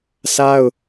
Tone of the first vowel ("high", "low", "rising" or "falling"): high